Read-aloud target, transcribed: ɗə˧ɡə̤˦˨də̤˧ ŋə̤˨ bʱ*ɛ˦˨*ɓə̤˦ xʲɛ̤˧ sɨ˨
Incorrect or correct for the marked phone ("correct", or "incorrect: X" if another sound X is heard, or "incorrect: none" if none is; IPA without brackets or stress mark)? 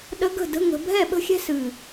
correct